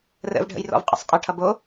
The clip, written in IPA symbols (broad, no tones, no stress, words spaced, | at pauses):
rə̰vɖʱə̰j rɔ̰vqʼə̰sˤqʼɐʈʰʌ bo